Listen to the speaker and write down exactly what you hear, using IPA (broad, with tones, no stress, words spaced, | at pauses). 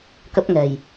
kə˦˥p̚ŋɛ̤˨˩j